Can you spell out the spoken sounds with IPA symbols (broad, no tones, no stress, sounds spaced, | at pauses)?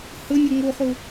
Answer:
h ə nʲ ə ŋ o χ o